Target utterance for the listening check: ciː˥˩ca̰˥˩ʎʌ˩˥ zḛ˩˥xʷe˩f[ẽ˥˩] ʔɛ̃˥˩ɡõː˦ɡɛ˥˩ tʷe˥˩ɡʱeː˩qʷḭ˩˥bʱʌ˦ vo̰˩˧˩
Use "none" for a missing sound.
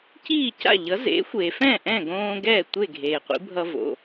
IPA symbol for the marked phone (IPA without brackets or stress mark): ɛ̃˥˩